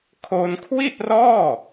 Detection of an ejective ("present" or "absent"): absent